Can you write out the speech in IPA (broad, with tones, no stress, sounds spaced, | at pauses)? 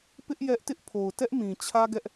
p ɪ˦ ʔ j ɛ˦ ʔ t ɪ˦ ʔ pʰ o˨ ʊ̯ t ɛ˦ ʔ m ĩ˨ t͡ɕʰ ä˦ ɡ ɛ˦ ʔ